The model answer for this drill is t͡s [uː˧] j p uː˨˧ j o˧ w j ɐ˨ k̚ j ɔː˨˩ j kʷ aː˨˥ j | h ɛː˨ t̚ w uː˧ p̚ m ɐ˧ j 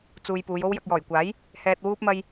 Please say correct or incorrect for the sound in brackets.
correct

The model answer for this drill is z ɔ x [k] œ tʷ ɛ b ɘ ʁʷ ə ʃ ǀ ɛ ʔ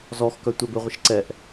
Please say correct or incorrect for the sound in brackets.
correct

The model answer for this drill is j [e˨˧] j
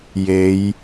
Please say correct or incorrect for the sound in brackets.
correct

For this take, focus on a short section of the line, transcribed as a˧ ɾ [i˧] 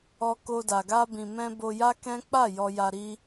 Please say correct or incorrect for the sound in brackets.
incorrect: i˦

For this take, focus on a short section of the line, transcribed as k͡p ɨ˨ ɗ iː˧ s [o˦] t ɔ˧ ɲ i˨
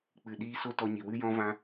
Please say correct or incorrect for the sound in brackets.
correct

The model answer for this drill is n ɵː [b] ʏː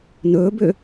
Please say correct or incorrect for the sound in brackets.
correct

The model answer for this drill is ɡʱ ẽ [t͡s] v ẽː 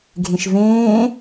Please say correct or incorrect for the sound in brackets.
incorrect: ʃ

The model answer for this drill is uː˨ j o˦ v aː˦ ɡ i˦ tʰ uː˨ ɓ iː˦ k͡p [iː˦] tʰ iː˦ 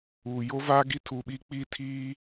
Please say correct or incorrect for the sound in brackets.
correct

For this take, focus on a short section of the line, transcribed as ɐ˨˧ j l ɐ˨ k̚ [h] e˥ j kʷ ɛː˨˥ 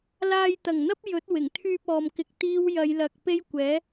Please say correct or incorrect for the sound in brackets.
incorrect: p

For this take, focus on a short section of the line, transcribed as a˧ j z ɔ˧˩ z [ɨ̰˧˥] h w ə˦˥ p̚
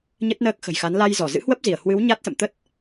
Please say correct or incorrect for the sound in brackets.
correct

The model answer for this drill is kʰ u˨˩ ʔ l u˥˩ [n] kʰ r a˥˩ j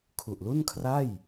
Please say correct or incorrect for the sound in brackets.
correct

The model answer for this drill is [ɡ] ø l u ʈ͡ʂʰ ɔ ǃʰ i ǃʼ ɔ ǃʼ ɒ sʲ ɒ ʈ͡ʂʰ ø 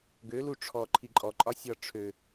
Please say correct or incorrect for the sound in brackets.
correct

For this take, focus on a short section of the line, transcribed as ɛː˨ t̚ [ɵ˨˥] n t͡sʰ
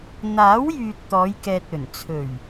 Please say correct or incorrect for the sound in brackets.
incorrect: ɵ˨˩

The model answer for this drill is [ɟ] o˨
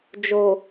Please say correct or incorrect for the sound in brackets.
incorrect: d͡ʒ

